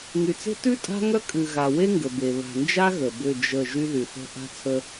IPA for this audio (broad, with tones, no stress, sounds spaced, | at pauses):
ŋ y˨ t͡s e̤˦ t ʉ˦ tʼ a̤˦ ŋ œ˦ kʼ ʉ˨ ɣ a˨ w e˦ ŋ ɡ ə˨ b e˨ β a̤˨ n d͡ʒ a˦ ɣ ə˨ b ʏ˦˨ d͡ʒ ə˦˨ ʒ y˦ ð y˨ θ ə̤˦ ʔ a̤˦ t͡sʰ ə˦